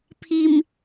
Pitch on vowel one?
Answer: low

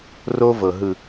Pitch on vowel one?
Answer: high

